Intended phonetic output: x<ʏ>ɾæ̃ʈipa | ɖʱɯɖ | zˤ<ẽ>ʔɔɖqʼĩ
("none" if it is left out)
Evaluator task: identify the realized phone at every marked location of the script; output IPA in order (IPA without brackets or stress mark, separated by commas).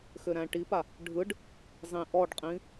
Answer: ʏ, ĩ